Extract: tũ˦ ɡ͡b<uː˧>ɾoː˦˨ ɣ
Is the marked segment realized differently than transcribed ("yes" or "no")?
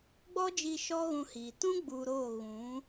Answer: yes